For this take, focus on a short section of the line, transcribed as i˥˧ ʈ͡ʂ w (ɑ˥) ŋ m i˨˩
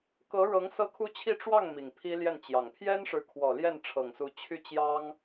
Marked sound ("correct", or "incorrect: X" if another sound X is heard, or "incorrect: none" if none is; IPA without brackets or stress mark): incorrect: ɑ˥˩